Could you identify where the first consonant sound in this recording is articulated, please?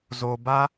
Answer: alveolar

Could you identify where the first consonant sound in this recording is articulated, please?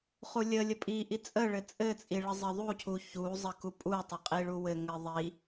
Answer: uvular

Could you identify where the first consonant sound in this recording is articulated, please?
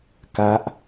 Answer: velar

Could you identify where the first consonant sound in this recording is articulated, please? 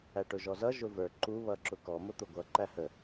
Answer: retroflex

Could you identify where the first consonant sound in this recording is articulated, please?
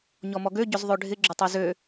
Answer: palatal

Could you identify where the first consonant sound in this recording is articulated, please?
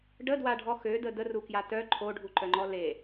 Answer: retroflex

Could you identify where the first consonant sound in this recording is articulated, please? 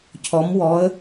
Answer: palatal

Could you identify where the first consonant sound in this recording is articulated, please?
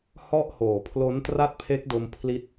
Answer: glottal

